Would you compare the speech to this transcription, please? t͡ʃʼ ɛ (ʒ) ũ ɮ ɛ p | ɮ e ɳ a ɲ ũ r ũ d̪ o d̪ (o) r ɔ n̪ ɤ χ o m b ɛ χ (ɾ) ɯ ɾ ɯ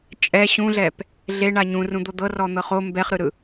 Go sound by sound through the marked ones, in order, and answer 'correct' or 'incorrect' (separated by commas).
incorrect, incorrect, correct